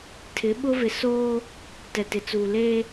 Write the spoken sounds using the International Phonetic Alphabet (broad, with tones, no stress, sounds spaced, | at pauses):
tʰ ɪ˨˦ ɓ ʊ˦ v ɪ˨ s oː˦ | t ɛ˨ t ɪ˨ t͡s uː˨ l eː˦